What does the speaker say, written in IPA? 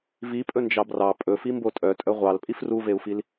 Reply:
v i pʼ ɵ n d͡ʒ ɑ b r ɑ pʼ ɵ f i m b o tʼ œ tʼ œ ʁʷ ɑ l pʼ i f r u v e u̯ f i l

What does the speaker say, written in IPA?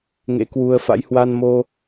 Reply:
ŋ ḛ˧˥ k w u˧ ə̯ f a̰˧˥ j h w a˧ n m o˧

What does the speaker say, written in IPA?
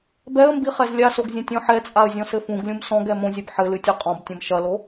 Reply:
b ɛ ə̯ m b i χ ɛ z lʲ a s o ɡ zʲ ɐ̃ tʲ ɔ̃ ħ ɛ t͡sʼ a ə̯ zʲ ɔ̃ s ɘ f ũ ɡ lʲ ũ m s ɔ̃ ɡ ɛ m õ zʲ ɛ b ħ ɘ l ɨ tʲ ɨ qʼ ɔ̃ b tʲ ɐ̃ m ʃ ɐ l o

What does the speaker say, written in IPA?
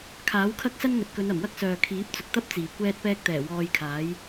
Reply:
kʰ aː˨˥ w kʰ ɐ˥ k̚ s ɐ˥ n ŋ ɵ˨ t̚ k ɵ˨˧ n ɐ˨˩ m w ɐ˥ k̚ s œː˨ kʰ iː˨˥ p̚ t͡s ʊ˨ k̚ t̪ ɐ˥ p̚ t͡s iː˨˩ kʷ ɛː˧ t̚ p ɛː˧ k̚ t̪ ɛː˨˩ w ɔː˧ j kʰ aː˨˥ j

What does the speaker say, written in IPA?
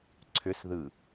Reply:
ǀʰ ʏ s ð ɯ

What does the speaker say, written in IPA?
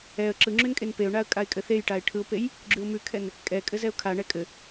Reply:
ɛ ə̯ ǁ ɯ ŋ͡ǁ ʉ n kʼ e n p e ʊ̯ ɳ a ə̯ kʼ a ɪ̯ kʼ ɘ θ e j ʈ a ɪ̯ ʈʰ ɯ ʊ̯ p e j | ɡ͡ǁ ʉ ʊ̯ m ʉ kʰ ɛ n | kʼ ɛ kʼ ɘ z ɛ ʊ̯ kʰ a ɳ ɛ kʼ ɘ

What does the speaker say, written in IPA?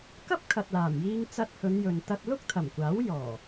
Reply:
k ɐ˥ p̚ kʰ ɐ˨ t̚ l aː˨˩ m j iː˧ ŋ t͡s ɐ˧ t̚ h ɵ˨˧ n j ɵ˨ n t̪ ɐ˧ t̚ l ʊ˥ k̚ t̪ʰ ɐ˨˩ m kʷ aː˨˥ w j ɔː˨˩

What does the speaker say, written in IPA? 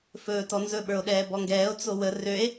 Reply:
f ɵː t ɔ n z ɵ ɓ ə˞ o̯ ɗ ɛː b ɔ ŋ ɡ ɛː o̯ t͡s o w ə r ø e̯

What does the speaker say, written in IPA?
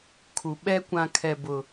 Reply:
kʰ u˨ ɓ ɛ˦ kʷ ã˦ kʰ ɛ˦ b ʊ˦

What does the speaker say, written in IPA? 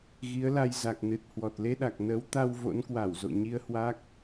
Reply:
ɣ i˨˦ ə̯ l a˧ j z a˨˩ k̚ n ɨ˨˩ t̚ h w ɔ˨˩ t̚ l e˧ ɗ a˨˩ k̚ n ə˨˦ w t̪ a˧ w v o̰˧˥ n k w a˧˩ w z o̰˧˨ ɲ i˧ ə̯ h w a˦˥ k̚

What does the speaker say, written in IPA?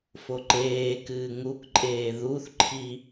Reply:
f o ǃ eː k ɨː ŋ u k ǃʼ eː ð u θ ǃʰ i

